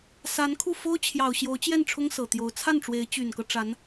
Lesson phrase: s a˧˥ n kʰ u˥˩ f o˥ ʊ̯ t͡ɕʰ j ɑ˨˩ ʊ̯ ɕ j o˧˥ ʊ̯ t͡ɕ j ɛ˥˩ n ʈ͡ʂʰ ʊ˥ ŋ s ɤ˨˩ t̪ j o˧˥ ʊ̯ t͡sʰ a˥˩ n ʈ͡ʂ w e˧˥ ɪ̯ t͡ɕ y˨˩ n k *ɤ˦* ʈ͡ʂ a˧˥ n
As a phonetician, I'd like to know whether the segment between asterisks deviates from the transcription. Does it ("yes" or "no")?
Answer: no